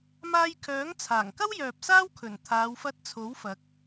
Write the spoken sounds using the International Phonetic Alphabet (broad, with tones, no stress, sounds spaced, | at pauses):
m aː˧ j kʰ œː˨˥ ŋ t͡sʰ aː˨˩ ŋ k ɐ˥ w j œː˨ p̚ s aː˥ w kʰ ɵ˨˩ n t̪ʰ aː˨˧ w f ɐ˧ t̚ t͡sʰ o˨˥ w f ɐ˨˥ k̚